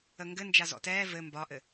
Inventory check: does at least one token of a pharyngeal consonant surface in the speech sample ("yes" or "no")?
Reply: no